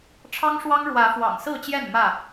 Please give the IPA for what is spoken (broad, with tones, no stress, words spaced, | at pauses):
ʈ͡ʂʰɑ˦ŋʂwɑ˦ŋ ɻwä˨˦ fwɑ̰˨˩ŋsɹ̩˥˨t͡ɕjɛ˥˨n mä˥˨